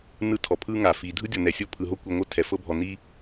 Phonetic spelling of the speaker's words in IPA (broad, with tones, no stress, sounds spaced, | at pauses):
n ɯ˥ tʰ ɔ˩ pʰ ɯ˦ ŋ a˩ f i˩ dʱ ɯ˥ dʲ ɔ˨ n ɛ˩ sʲ o˥ pʰ ɯ˨ ɦ o˥ kʷ i˨ ŋʷ ɤ˥ tʰ ɛ˩ f ɤ˦ bʱ ɔ˨ n i˦